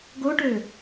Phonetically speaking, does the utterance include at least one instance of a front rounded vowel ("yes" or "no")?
yes